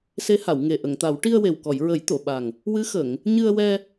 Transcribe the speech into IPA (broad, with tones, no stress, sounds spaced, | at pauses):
s e˧˥ h a˨˩˨ w ŋ e˨˩ ʔ ə˨˩˨ ŋ t̪ a˨˩˦ w ʈ i˧ ə̯ w e˨˩ w k ɔ˨˩˨ j ɹ ə˨˩˦ j t̪ o˨˩˨ ɓ a˨˩ ŋ | w ɨ˧˥ x ə˨˩˨ ŋ | ɲ ɨ˧ ə̯ w ɛ˧